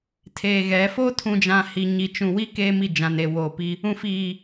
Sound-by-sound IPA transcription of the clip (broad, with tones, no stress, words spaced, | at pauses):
tʰeː˨ɣɛ˨˦ foː˦tʰũ˨d͡ʒã˨ hi˨ɲi˨ t͡ʃũ˨wi˦ keː˦mi˦˨d͡ʒã˨n e˨woː˨pi˦ | ũ˨fiː˨